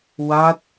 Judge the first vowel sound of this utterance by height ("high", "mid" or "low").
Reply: low